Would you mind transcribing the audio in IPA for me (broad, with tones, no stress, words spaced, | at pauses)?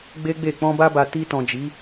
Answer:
ɡ͡be˦ɡ͡be˦˨ k͡pɔ̃˧ba˧ba˨ ti˧tɔ̃˨ d͡ʒi˨˦